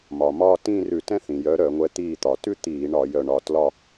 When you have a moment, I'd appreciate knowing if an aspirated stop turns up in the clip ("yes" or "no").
no